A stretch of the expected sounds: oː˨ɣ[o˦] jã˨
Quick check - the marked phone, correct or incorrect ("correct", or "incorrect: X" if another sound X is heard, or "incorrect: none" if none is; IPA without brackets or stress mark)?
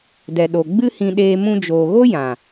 correct